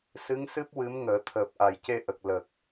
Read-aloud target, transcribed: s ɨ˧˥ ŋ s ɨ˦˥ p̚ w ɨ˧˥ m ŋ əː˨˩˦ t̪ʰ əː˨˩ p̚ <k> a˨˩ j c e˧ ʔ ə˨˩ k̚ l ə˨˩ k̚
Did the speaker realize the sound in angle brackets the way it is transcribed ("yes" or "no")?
no